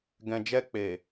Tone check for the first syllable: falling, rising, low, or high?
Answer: low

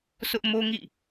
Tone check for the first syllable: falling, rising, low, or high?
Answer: high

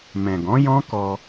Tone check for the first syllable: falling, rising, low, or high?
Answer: low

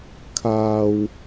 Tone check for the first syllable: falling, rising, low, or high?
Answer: low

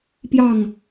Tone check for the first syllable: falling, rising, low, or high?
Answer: falling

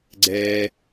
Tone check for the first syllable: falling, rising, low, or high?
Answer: high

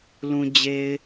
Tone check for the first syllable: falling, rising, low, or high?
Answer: low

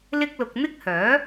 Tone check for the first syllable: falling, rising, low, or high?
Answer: high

